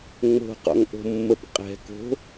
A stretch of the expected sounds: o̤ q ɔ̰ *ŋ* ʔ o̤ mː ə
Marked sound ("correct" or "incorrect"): correct